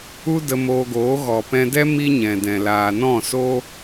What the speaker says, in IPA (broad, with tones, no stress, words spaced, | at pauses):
u˦də˧moː˧ɡoː˨˦ ɣɔ˨pɛ̃˧dɛ˦ mi˦ɲɛ̃˨dɛ̃˨ laː˨nɔ̃˦˨so˦